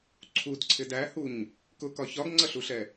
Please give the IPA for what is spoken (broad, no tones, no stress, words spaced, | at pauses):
ǀʰudǀʰɪd æhuɲ | kʊkɒ çɒɡŋ͡ǀʌɬuɬɛ